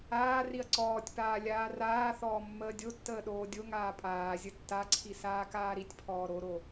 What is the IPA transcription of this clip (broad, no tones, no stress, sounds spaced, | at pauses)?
aː r i ɐ̯ ǀ ɔː tʲ p aː lʲ aː r aː θ ɔː mː əː dʲ o tː əː ɗ oː dʲ o ŋ aː pʼ aː zʲ ə tː a ǀʰ i s aː k aː ɾ i tʲ pʰ ɔː ɾ o ɾ o